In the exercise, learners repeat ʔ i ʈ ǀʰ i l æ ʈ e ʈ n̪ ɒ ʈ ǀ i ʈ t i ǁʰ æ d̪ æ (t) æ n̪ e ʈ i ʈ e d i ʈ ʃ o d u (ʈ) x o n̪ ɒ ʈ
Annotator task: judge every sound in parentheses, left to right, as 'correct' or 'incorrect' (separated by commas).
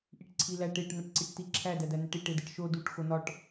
incorrect, correct